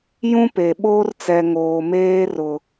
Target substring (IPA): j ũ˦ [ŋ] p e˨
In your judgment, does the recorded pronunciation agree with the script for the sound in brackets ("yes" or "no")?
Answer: no